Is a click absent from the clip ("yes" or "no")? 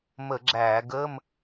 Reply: no